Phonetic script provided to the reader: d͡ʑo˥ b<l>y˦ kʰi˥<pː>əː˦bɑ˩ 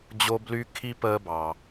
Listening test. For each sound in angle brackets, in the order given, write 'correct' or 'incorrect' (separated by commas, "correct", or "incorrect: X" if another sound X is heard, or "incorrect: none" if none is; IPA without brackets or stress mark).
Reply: correct, incorrect: p